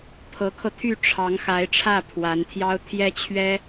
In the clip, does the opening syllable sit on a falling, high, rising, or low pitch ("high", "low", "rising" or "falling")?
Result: rising